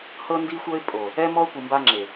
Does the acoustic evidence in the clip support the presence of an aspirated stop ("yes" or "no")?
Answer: no